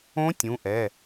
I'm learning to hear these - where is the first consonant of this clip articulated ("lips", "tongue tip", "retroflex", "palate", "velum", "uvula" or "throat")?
tongue tip